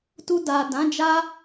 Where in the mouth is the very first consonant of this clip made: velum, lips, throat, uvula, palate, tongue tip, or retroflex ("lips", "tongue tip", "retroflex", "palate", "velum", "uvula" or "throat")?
tongue tip